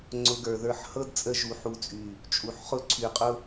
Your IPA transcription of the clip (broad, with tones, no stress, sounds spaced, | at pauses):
ŋ͡ǀ ʊ˧ ɡ ə˞˨ ð ə˞˦˨ ħ h ɤ˦ d t͡sʼ ə˧ ʒ u˨ ħ u˧ t͡sʼ y˨ | t͡ʃʼ u˨ ħ χ ʊ˦ ǀʰ y˨ qʼ ʊ˦